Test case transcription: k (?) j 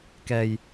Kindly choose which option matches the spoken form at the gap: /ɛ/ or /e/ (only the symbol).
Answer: ɛ